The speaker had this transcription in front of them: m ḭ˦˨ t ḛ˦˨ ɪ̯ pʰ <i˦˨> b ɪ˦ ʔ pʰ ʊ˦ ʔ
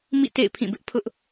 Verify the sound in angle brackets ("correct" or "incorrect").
incorrect